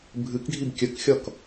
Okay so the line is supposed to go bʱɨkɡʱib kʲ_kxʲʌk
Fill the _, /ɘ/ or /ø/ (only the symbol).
ɘ